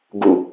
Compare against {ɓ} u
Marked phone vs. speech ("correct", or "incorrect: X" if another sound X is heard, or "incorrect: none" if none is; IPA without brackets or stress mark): incorrect: ɡ